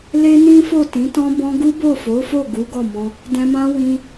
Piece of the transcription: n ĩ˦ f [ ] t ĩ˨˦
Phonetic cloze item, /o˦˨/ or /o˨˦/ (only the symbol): o˦˨